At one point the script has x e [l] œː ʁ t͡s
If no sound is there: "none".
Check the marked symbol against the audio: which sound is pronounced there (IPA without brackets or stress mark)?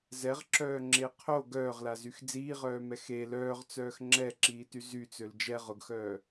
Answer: l